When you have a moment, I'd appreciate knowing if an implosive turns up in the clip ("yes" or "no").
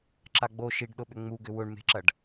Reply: yes